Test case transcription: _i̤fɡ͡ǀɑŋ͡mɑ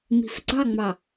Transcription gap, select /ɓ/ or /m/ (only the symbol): m